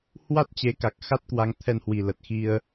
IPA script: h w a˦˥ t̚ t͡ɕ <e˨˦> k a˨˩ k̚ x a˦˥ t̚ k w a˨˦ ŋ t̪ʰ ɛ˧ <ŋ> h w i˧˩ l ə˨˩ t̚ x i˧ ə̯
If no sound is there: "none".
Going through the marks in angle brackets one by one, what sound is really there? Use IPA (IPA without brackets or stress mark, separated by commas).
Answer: e˨˦, n